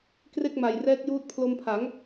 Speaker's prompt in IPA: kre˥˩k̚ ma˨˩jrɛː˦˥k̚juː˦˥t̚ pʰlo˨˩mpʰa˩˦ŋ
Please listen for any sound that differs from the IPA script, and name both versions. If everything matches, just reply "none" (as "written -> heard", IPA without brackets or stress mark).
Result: o˨˩ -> o˧